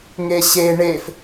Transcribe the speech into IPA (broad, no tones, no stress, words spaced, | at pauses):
ŋeɕe ɳef